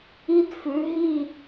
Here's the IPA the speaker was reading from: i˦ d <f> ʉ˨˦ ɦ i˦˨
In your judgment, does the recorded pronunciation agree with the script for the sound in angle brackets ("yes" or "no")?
yes